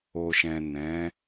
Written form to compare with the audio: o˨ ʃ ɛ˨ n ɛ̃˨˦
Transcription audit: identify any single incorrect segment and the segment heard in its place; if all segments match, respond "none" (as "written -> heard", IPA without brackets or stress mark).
ɛ˨ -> ɛ̃˨